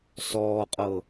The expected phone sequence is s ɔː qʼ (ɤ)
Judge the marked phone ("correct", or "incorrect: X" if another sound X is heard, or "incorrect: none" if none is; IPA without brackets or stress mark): correct